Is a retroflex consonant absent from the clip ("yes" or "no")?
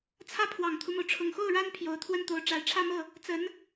no